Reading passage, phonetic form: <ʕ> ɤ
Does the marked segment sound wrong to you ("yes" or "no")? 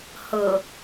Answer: yes